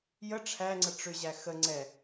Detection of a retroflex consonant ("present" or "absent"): present